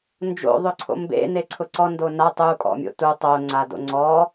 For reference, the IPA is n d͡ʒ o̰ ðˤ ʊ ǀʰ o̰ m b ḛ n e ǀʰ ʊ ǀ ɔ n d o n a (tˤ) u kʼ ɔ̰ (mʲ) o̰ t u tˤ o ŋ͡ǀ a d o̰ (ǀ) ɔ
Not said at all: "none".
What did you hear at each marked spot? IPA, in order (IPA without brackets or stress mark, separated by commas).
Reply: tˤ, mʲ, ŋ͡ǀ